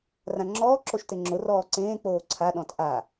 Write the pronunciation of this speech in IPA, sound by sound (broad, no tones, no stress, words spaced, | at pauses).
rãŋ͡ǁɔːǁoʃ teŋ͡ǁʊ rɔːǀẽːk͡poː ǀʰaɗɔ̃t ʔa